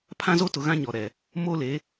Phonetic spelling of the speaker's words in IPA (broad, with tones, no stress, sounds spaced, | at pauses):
pʰ ã˦ z o˦ t ʊ˨ ɣ ã˦ ɲ ɔ˨ ɾ ɛ˨ | m o˦ l e˨˦